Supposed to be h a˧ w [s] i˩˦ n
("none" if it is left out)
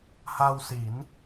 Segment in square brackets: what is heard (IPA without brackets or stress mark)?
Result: s